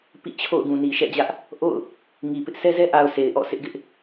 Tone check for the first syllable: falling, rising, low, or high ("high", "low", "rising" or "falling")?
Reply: falling